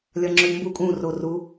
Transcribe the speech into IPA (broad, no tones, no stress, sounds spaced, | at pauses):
lʲ ɒ ŋ͡ǁ ɵ ʎ m b u kʼ ũ r o r u